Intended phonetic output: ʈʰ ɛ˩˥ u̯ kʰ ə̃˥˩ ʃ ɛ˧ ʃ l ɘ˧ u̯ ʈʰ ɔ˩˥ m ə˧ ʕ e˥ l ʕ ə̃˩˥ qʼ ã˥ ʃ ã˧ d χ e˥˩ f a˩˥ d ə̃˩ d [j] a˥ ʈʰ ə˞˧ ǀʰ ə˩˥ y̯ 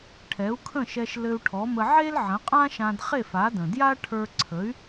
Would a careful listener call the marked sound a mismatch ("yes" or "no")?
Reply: no